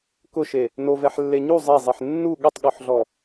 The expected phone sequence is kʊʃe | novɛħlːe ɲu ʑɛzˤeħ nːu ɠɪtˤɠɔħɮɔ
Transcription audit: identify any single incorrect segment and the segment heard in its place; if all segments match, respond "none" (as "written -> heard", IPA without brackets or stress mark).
ʑ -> zˤ